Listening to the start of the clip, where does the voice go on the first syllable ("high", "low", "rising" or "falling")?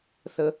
low